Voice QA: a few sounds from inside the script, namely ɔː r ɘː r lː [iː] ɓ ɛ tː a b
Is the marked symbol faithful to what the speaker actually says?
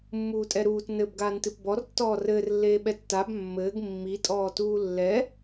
no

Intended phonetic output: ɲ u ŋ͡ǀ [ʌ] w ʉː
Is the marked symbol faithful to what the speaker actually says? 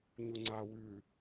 no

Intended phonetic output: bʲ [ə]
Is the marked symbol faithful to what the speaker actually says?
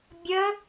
yes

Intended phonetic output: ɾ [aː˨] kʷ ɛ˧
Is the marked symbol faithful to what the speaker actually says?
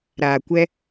yes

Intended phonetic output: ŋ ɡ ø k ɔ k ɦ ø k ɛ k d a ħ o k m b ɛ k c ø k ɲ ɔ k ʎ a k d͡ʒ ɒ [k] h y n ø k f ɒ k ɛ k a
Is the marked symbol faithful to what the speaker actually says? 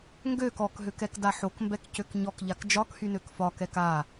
yes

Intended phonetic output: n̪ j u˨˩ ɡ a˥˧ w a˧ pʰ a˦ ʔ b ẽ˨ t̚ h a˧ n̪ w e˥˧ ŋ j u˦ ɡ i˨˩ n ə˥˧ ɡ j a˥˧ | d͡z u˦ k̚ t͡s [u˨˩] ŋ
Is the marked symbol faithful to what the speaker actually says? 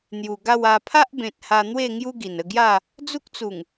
yes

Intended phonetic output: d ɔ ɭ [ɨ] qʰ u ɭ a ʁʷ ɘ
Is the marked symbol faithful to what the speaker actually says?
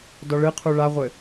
yes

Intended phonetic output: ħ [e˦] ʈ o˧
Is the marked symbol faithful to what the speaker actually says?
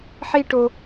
no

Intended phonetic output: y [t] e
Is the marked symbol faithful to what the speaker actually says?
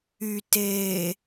yes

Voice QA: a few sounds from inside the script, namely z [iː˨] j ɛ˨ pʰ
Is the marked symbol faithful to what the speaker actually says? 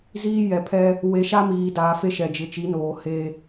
no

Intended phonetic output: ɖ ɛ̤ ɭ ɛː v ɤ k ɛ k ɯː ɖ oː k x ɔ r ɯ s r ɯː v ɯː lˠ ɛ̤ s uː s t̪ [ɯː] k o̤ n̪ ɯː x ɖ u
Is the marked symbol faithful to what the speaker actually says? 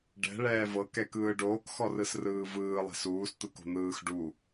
no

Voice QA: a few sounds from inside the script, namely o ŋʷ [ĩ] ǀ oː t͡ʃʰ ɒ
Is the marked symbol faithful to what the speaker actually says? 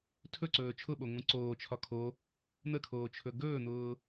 yes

